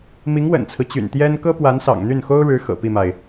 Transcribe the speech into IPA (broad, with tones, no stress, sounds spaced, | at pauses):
m i˧˥ ŋ w ə̰˨˩ n t͡sʰ ɹ̩˦ t͡ɕ y̰˨˩ n t̪ j ɛ˥ n k ɤ˥ p w a˧˥ n s ɑ̰˨˩ ŋ n̪ y˥˩ n x o˥ ʊ̯ ɻ ɻ̩˧˥ x ɤ̰˨˩ p i˥˩ m a˩ ɪ̯